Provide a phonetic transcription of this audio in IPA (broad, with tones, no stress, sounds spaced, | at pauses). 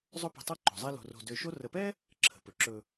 zˤ ɵ˦ p ə̤˨ tˤ ɤ˦ ǃ o̤˩ zˤ ɛ˦ l o̤˨ r o̤˨ d ø˨ ʃ o˦ r ə˨ p ɛ˥ | ǁʰ ə̤˩ p ɵ˩ ǁ ɵ˨